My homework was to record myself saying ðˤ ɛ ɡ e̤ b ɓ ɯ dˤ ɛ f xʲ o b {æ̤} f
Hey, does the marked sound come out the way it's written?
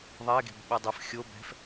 no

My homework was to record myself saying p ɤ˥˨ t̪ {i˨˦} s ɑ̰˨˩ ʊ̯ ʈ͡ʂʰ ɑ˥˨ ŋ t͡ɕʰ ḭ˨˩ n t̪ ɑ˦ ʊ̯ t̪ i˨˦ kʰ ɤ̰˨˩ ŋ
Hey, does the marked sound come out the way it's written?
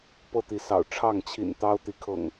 yes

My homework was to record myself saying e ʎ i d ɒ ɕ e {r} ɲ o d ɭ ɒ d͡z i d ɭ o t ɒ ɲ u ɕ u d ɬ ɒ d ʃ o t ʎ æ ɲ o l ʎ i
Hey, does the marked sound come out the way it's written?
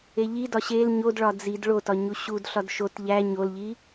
no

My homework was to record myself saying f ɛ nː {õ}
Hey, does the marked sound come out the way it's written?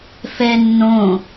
yes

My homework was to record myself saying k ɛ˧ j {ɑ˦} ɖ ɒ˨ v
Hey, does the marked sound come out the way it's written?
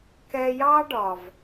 yes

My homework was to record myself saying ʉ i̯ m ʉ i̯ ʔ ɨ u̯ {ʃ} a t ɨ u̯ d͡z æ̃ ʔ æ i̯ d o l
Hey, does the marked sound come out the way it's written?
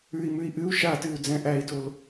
yes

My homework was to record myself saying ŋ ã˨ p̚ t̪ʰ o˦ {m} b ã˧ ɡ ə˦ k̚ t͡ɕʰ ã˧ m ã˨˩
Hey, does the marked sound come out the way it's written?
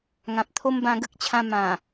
yes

